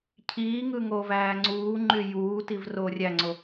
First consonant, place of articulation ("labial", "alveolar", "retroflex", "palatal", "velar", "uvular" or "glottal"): palatal